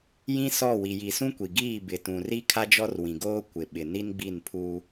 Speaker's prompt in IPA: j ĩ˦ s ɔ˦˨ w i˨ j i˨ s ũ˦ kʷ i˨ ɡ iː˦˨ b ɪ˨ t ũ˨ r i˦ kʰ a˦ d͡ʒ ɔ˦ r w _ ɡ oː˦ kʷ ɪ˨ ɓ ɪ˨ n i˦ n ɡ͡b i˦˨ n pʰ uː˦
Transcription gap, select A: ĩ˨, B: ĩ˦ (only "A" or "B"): A